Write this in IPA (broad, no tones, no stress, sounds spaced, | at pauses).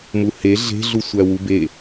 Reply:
m u h e ɮ e̤ ɮ u sʷ æ w u b e